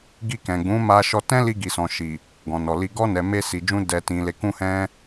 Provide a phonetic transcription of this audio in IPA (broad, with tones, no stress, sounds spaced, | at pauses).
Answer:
ɡ i˧ k ɛ̃˨ ɡ͡b ũ˨˦ m a˧ ʃ ɔ˧ t ɛ̃˦ l i˧ ɡ i˨ s ɔ̃˨ ʃ i˨ | ɡ ɔ̃˨ n ɔ˨ l i˧ ɡ ɔ˧ n ɛ˨ m e˧ s i˨ d͡ʒ ũ˧ d ɛ˨ t ĩ˨ l e˨ k ũ˧ h ɛ̃˦